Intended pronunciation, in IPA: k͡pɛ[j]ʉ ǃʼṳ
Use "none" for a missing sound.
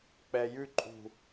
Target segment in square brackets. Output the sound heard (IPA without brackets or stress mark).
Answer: j